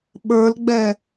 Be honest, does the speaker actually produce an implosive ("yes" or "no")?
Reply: yes